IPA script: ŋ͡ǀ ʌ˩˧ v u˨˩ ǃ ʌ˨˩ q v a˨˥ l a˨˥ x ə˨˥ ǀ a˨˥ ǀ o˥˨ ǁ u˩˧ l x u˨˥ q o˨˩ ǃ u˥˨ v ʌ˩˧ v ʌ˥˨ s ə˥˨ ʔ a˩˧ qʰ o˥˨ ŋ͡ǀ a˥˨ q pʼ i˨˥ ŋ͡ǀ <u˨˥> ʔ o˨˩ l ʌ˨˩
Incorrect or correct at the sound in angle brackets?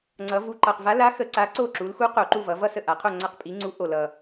correct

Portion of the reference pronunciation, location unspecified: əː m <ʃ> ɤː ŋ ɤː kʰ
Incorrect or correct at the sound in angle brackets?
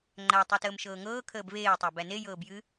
correct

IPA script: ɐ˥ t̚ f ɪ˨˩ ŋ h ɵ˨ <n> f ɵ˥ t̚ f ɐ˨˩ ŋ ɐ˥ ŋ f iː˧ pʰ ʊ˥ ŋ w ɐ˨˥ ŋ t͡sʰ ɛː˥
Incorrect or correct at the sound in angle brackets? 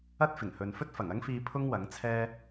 correct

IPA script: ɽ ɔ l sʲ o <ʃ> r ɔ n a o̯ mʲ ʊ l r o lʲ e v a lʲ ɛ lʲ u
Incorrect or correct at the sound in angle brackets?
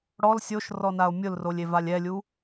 correct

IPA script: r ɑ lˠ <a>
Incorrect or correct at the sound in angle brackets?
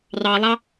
incorrect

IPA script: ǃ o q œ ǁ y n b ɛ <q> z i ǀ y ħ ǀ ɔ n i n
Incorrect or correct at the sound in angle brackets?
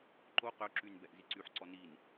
incorrect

